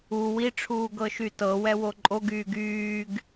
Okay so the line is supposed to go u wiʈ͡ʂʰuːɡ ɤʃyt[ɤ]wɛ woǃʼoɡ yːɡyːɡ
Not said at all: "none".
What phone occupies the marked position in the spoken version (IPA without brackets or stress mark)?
ɤ